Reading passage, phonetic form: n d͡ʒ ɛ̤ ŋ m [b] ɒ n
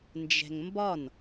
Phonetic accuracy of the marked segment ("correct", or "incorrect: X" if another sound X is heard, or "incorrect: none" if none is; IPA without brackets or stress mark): correct